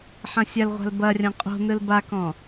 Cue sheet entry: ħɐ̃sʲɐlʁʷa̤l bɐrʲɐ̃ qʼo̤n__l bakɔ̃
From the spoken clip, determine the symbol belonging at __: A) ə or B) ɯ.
B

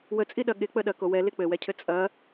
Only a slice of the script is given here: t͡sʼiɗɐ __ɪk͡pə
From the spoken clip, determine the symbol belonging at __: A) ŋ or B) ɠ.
B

